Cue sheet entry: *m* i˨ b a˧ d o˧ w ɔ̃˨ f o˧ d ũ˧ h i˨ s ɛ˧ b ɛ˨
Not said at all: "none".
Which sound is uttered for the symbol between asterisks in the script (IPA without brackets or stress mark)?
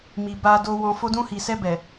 m